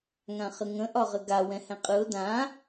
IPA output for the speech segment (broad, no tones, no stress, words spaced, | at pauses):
ŋãχəŋə̃ ʔɒʁəɡa wɛ̃hɛ̃qʼɯʊ̯ dã